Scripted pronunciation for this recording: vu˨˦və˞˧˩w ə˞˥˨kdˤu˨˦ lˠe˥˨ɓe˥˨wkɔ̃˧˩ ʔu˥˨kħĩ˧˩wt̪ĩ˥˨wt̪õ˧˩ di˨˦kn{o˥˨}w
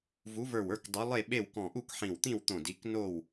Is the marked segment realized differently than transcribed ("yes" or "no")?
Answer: no